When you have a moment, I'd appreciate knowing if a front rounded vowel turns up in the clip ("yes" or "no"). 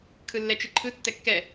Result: no